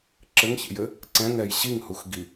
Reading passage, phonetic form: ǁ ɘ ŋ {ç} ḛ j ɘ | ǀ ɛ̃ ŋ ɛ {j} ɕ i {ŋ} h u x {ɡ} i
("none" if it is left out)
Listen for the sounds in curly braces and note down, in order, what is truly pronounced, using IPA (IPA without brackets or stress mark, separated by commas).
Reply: ç, j, ŋ, ɡ